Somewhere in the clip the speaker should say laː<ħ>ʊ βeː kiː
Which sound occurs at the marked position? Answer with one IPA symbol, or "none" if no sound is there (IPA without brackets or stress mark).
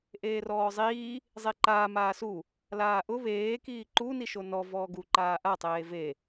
ʔ